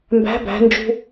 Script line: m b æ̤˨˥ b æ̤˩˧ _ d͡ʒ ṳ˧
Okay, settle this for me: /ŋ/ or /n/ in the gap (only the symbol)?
n